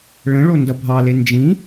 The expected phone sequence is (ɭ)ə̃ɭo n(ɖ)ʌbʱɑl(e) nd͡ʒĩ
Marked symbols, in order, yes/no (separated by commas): yes, no, yes